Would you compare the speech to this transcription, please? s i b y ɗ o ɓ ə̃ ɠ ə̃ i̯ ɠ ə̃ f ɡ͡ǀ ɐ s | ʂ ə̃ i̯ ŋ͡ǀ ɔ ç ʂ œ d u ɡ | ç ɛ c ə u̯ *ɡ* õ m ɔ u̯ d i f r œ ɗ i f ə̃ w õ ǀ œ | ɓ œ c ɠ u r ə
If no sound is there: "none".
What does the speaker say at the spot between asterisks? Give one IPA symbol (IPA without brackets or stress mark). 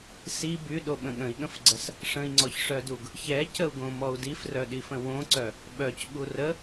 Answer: ɡ